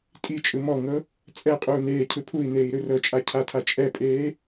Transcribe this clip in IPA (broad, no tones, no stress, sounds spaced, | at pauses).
tʼ i t͡ʃʼ ɯ m ɔ ŋ ɤ | t͡sʼ ɛ qʼ uː n eː cʰ ɯ pʰ u i̯ n eː i̯ ɾ ɯ r ɤ t͡ʃʼ a cʰ a tʰ a t͡ʃʼ ɛ pʼ eː